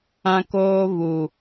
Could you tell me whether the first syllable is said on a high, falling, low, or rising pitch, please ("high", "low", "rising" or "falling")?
high